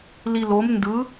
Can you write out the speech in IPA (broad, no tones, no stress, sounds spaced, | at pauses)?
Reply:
l i l o m n d ɯ